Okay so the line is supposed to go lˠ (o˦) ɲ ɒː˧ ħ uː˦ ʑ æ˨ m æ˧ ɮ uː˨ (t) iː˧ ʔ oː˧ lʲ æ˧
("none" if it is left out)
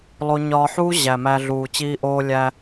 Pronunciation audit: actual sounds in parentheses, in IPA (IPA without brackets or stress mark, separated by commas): o˦, t͡ɕ